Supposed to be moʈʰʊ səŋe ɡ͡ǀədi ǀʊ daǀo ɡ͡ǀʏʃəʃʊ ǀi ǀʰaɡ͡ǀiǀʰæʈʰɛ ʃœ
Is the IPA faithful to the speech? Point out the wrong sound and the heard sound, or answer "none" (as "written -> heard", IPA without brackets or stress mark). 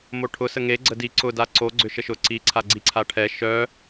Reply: æ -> a